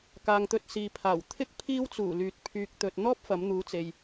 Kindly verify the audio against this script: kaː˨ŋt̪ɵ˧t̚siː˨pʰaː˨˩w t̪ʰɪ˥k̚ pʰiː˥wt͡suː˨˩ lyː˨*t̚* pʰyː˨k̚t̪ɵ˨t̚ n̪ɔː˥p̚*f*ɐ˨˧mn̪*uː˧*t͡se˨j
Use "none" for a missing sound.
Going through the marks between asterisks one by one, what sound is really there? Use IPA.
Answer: t̚, f, uː˨˧

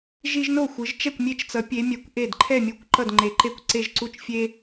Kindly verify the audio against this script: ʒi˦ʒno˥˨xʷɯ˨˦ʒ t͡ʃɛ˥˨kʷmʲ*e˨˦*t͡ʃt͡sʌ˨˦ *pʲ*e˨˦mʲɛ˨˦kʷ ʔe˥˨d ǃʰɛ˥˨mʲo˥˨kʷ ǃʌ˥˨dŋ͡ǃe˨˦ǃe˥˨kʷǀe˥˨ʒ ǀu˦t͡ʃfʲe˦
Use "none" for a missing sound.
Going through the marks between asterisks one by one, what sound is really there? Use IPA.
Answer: e˦, pʲ

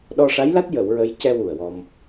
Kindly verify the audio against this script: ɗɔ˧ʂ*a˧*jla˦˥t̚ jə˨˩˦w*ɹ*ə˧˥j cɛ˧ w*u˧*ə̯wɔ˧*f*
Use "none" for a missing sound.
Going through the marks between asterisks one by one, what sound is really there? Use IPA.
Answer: a˧˥, ɹ, u˨˩, m

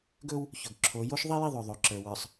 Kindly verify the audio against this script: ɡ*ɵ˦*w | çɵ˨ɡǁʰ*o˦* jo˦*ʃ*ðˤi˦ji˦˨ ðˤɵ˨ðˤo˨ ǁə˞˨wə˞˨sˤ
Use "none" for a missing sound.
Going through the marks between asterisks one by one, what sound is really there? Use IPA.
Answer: ɵ˦, o˨˦, ʃ

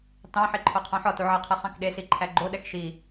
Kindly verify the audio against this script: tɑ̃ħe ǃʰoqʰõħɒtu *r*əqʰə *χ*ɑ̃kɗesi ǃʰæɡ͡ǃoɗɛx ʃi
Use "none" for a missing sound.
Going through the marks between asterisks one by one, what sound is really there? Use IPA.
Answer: ʕ, χ

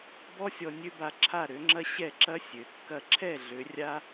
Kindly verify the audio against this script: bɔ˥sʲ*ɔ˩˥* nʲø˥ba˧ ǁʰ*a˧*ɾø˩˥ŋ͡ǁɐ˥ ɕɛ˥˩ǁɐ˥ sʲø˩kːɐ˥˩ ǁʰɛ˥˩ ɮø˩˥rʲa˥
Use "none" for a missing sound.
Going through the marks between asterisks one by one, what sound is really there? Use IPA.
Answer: ɔ˧, a˥˩

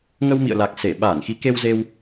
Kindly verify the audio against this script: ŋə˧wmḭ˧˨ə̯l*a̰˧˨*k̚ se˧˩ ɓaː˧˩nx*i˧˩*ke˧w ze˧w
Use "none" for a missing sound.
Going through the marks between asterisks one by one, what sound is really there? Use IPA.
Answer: a˨˩, i˨˦

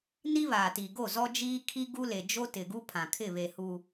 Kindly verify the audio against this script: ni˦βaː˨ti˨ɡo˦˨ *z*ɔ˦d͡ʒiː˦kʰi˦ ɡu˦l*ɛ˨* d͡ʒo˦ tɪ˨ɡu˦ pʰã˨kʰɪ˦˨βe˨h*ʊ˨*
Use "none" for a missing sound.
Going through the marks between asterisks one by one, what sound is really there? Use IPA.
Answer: z, e˨, u˨

